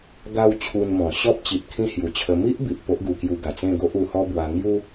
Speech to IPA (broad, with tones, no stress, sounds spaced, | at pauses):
ɡ a˧ w t͡ɕʰ u˧ n m ɔ̃˨˩ ɕ ɔ˦ p̚ t͡ɕ i˨ p̚ kʰ ĩ˥˧ h j u˨˩ t͡ɕʰ ə˧ m i˦ ʔ b i˨ ʔ p o˦ ʔ ɡ u˧ k j u˧ ɡ a˨˩ t͡s ẽ˥˧ ɡ o˦ ʔ u˧ h ɔ˦ b w a˧ ŋ j u˦